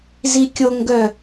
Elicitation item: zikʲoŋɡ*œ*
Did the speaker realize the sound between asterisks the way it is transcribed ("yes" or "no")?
yes